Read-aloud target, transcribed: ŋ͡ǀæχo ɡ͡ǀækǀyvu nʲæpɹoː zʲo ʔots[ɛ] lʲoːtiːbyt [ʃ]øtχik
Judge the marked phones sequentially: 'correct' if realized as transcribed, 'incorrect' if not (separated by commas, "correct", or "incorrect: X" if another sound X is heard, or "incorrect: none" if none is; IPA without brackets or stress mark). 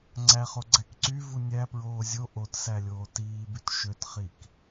incorrect: æ, correct